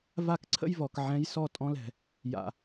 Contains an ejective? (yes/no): yes